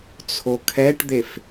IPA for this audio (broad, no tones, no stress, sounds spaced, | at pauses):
t͡sʰ o kʰ ɛ ʈ d̪ e f